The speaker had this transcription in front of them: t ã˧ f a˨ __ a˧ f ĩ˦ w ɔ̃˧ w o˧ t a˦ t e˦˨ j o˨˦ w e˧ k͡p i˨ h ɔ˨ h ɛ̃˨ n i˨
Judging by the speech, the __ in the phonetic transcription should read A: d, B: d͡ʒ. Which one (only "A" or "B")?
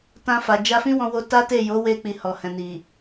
B